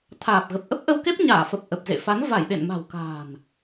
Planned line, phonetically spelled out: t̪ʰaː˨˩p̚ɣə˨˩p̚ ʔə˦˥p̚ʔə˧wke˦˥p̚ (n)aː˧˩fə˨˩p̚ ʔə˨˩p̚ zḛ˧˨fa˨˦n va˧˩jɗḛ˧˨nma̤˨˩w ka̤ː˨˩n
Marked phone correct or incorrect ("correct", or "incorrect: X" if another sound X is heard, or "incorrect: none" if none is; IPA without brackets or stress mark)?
incorrect: ɲ